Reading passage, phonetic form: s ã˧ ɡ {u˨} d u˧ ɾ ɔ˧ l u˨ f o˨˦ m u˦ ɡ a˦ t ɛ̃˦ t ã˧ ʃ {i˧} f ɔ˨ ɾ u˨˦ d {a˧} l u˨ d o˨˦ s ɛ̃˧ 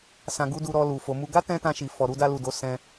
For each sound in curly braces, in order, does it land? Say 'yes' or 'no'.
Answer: no, no, yes

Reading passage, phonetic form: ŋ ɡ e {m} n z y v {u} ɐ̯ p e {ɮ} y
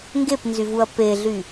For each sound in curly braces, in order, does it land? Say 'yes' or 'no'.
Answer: no, yes, yes

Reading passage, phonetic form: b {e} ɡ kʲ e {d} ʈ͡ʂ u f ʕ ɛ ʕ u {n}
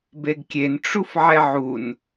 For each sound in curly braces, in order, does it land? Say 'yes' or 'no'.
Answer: yes, no, yes

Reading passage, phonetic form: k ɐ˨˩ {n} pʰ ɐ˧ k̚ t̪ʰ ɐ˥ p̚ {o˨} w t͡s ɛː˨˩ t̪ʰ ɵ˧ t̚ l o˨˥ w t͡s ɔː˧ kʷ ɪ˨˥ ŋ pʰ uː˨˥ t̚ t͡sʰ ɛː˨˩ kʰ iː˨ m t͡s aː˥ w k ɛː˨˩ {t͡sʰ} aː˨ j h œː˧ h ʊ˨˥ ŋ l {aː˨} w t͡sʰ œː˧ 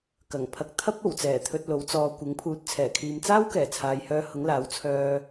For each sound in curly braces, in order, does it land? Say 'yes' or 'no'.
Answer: no, no, yes, no

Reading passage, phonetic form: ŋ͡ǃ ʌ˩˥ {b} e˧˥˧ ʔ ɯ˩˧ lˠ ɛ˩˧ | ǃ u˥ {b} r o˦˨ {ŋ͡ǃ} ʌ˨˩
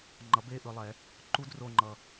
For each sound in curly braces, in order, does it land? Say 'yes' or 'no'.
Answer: yes, no, yes

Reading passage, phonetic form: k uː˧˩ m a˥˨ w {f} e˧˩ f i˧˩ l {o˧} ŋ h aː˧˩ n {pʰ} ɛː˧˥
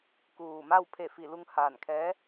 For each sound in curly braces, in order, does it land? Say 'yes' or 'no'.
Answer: no, no, no

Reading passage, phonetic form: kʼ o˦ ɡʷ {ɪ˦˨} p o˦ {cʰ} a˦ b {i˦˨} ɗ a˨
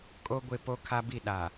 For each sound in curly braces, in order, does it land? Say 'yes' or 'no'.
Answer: yes, no, yes

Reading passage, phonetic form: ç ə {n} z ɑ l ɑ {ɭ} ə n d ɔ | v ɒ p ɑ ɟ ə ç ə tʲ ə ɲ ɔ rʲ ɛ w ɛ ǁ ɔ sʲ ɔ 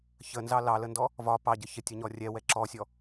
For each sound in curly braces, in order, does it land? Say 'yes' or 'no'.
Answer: yes, no

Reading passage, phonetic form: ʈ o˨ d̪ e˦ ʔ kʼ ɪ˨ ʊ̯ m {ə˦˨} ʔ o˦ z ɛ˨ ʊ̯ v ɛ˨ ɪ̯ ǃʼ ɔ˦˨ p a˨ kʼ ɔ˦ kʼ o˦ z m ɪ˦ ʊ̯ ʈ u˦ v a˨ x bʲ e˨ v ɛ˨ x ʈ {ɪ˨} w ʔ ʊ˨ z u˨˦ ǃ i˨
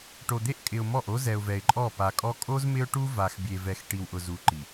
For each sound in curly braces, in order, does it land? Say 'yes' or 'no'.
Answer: no, no

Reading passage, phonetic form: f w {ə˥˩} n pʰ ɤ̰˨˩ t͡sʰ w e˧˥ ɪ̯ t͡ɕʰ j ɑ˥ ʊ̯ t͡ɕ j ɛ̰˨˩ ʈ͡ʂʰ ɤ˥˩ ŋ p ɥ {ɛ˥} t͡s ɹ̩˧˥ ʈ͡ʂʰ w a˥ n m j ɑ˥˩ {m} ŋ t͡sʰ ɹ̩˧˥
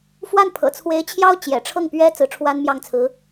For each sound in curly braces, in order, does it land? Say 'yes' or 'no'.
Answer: no, yes, no

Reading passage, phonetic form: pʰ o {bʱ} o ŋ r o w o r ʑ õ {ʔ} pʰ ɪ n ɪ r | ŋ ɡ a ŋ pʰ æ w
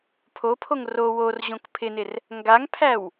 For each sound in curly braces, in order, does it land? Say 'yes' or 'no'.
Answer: no, no

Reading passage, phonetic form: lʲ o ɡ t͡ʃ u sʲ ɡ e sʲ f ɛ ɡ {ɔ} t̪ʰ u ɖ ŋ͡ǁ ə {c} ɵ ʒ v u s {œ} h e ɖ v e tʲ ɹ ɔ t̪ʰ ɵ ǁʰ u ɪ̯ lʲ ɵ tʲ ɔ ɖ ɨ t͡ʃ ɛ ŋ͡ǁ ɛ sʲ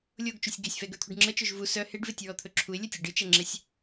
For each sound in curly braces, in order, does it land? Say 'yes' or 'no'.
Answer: no, no, yes

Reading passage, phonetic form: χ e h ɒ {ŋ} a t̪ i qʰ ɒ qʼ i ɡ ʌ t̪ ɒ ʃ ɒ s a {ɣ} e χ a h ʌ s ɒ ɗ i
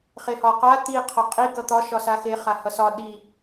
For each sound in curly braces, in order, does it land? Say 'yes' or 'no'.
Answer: no, no

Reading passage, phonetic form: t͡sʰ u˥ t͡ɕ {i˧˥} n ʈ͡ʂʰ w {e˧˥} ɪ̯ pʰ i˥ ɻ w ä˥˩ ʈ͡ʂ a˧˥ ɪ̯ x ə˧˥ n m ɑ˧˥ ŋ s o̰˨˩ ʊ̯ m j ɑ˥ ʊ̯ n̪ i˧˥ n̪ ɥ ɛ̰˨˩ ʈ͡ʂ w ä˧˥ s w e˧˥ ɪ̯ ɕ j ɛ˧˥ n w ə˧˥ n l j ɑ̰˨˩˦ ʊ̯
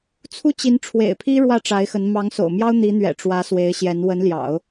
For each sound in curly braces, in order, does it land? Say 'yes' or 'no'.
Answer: yes, no

